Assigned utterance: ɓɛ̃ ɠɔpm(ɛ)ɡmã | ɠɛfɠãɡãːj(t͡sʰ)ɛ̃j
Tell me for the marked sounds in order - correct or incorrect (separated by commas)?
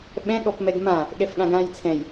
correct, correct